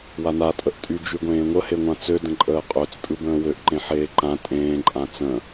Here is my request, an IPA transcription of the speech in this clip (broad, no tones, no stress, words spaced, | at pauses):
wana tʼəʔtʼy d͡ʒyɡʷẽːŋʷə heŋʷãt͡sø də̃ǃʼəːqʼøt͡s tʼɯbə̃ːwøʔ ǃẽħeːǃã tʼẽː ǃʼãt͡sə̃